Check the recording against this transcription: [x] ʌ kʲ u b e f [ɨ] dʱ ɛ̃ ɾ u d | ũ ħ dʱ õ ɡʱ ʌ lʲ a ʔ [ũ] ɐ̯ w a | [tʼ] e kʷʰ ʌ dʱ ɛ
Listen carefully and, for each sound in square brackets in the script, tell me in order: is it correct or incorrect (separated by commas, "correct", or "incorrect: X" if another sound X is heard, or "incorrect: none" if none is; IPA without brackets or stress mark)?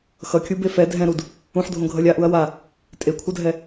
correct, incorrect: ɛ, incorrect: u, correct